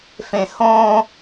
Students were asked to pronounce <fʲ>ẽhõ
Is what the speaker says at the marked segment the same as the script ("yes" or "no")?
no